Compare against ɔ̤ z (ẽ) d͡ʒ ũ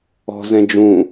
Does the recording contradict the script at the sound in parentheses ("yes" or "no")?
yes